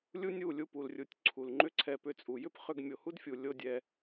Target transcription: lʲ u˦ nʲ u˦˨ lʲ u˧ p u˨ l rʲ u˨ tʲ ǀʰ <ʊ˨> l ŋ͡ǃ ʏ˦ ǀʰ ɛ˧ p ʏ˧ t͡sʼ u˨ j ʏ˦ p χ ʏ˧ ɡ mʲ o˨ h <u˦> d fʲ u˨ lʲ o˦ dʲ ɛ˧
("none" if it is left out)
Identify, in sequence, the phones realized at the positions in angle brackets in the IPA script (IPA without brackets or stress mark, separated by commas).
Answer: u˨, u˦